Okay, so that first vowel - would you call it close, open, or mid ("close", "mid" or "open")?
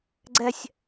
mid